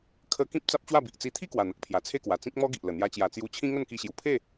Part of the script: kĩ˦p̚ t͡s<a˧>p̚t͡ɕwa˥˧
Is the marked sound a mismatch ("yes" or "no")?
yes